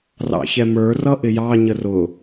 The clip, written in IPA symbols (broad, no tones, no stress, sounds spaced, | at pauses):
r ɑ̰ ç ɛ m ə˞ r ʌ ʔ ɪ j ɑ ɲ ə r ʊ